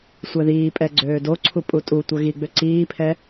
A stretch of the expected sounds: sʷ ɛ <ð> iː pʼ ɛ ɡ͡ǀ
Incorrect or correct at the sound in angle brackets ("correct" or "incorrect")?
correct